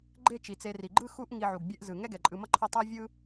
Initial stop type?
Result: click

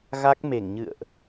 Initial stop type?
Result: plain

